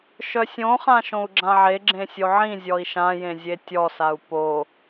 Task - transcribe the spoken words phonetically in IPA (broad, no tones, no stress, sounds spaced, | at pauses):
ʃ œ sʲ õ χ ã ʃ õ u̯ ɡ͡ǁ ã ʕ e ɡ͡ǁ ẽ sʲ o ʕ ĩ zʲ ɔ i̯ ʃ ã j ẽ zʲ e tʲ ɔ s a u̯ p o